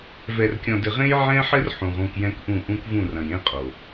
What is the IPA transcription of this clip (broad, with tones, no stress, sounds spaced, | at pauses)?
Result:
v ɛ˨ r kʲ ɔ̃˨ d ɘ˨ ʁ ẽ˦ j ʕ ɛ̃˦ ħ ɘ˦ r ħ ũ˨ ʁ ũ˦˨ k j ɛ̃˦ k ʔ ũ˦˨ ʔ ũ˦ k v ũ˦˨ r ɐ̃˨ j ẽ˦ qʼ o˨